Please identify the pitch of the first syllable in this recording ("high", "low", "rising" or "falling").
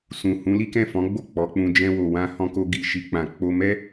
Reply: low